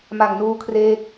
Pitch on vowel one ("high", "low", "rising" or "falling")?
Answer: low